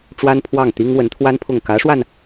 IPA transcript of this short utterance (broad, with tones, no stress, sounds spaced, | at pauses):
ʈ͡ʂ w a˥ n pʰ w ɑ˥˩ ŋ t̪ i˥ ŋ w ə˧˥ n t̪ʰ w a˥ n pʰ ʊ˥˩ ŋ k ä˧˥ ʂ w a˧ n